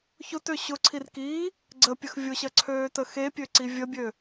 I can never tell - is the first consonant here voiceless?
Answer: yes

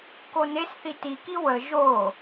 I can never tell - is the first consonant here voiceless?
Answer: yes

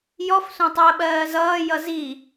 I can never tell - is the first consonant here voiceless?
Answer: no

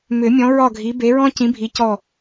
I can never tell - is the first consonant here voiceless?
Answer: no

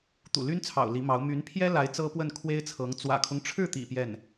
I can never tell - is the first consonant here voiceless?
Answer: yes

